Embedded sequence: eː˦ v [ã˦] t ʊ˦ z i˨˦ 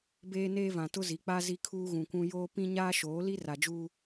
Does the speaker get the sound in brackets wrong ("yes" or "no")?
yes